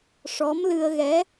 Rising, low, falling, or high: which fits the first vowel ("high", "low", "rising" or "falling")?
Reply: rising